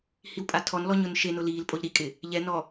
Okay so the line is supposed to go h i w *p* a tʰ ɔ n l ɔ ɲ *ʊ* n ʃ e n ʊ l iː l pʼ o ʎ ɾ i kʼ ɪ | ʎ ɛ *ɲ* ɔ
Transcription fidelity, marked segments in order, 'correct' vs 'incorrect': incorrect, correct, incorrect

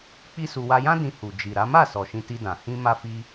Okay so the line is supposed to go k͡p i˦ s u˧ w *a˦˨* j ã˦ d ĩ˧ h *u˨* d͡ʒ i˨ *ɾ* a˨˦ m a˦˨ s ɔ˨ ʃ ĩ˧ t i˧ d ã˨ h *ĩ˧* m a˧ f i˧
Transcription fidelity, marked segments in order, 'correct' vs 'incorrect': incorrect, correct, correct, correct

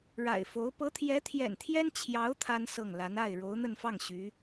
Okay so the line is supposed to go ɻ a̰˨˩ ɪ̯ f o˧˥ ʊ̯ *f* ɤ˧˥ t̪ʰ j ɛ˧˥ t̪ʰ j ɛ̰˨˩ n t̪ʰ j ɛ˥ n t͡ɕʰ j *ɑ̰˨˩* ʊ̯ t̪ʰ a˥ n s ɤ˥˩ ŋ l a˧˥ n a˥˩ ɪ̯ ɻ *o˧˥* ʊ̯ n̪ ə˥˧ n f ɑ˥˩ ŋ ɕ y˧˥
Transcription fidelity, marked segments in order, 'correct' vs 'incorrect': incorrect, incorrect, correct

